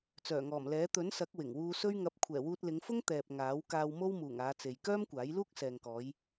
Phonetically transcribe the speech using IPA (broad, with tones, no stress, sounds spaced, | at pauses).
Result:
t͡s œː˨˩ ŋ ɔː˨˩ m l ɛː˨˥ t̪ ɵ˨˥ n s ɐ˨˥ k̚ w ɪ˨˩ ŋ w uː˧ s ɵ˥ ɥ ŋ ɐ˧ p̚ kʷʰ ɛː˨˩ w uː˧ t̚ l ɪ˨˧ ŋ f ʊ˥ ŋ t̪ ɛː˨ p̚ ŋ aː˨˥ w k aː˧ w m o˥ w m uː˨˩ ŋ aː˨˧ t͡s e˨ j k œː˥ m kʷ aː˨˥ j l uː˥ k̚ s ɛː˨ ŋ k ɔː˨˧ j